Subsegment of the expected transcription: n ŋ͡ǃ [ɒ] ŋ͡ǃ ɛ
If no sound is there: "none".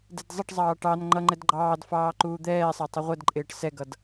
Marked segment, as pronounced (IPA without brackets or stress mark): ʌ